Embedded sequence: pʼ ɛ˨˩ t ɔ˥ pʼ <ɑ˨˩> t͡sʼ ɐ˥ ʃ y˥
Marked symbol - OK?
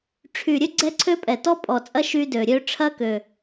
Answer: no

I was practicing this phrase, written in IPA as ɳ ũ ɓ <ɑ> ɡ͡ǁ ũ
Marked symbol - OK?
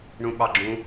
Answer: yes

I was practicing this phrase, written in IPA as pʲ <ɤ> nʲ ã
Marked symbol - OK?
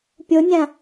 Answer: no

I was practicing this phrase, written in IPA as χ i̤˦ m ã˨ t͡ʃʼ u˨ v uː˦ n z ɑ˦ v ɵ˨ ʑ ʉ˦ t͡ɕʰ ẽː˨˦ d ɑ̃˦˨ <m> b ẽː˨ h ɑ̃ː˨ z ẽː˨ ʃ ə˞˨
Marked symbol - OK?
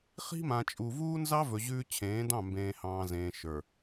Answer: yes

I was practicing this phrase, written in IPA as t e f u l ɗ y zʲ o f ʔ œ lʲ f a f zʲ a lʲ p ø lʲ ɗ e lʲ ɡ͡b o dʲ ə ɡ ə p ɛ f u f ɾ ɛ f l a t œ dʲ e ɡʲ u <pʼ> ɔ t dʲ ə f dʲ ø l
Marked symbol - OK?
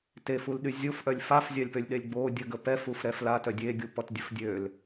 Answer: no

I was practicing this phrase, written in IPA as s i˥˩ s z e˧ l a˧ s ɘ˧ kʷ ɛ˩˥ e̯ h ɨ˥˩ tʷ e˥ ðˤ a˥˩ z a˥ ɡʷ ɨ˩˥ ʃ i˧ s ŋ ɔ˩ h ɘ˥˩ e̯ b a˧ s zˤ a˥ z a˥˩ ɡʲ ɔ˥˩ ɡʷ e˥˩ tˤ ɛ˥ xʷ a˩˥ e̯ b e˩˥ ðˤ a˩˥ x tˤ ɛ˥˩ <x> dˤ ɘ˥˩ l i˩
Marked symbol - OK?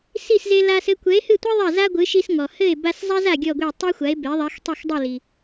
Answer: yes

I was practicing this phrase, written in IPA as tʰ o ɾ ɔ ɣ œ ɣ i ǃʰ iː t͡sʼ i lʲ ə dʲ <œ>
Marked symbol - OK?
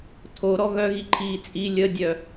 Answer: yes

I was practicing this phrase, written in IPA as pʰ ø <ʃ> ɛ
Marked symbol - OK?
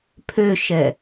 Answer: yes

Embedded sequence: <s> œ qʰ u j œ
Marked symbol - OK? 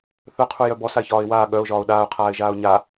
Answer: no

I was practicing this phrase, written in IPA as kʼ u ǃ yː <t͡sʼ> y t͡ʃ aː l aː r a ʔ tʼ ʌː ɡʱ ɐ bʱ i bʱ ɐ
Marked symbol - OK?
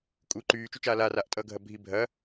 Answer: no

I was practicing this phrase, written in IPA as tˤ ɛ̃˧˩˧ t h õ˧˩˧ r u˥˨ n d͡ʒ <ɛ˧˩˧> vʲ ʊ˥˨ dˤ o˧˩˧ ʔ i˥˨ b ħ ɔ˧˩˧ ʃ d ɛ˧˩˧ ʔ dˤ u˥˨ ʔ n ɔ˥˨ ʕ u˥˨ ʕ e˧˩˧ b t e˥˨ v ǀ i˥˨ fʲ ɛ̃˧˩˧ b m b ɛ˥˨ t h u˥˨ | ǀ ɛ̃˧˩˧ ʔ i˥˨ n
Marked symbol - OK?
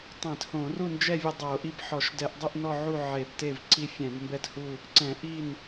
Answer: no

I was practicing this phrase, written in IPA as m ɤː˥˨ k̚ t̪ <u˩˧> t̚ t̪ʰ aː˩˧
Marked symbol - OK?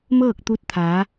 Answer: no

